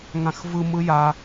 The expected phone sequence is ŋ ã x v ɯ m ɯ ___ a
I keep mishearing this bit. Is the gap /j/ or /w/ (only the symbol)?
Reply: j